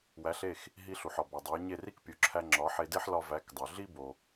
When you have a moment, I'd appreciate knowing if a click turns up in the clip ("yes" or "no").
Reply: yes